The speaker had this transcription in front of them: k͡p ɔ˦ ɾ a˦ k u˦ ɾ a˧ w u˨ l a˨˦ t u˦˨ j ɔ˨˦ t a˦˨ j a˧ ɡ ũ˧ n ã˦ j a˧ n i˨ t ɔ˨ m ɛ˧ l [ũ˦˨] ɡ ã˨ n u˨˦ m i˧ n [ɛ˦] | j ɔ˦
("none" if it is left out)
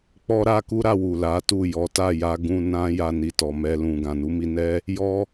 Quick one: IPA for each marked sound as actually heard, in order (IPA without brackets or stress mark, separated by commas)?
ũ˨, ɛ˦